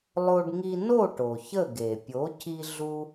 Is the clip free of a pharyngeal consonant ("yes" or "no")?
yes